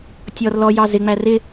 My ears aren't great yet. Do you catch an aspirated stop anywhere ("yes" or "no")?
no